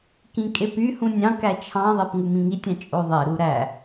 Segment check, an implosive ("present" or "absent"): absent